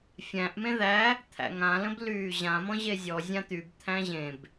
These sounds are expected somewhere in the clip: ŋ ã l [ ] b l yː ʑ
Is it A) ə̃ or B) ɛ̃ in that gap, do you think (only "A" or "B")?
A